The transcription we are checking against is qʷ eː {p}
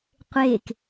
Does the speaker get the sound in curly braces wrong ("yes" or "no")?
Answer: yes